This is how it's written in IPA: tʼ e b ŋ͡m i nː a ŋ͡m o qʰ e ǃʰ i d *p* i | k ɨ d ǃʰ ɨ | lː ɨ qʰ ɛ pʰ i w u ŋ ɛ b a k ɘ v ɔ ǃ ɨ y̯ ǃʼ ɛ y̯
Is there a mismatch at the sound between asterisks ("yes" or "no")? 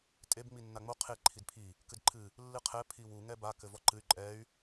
yes